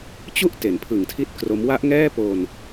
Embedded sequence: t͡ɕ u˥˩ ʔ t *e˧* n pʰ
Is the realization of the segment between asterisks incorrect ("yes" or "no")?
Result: yes